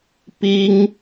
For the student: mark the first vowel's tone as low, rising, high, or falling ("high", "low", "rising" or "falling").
high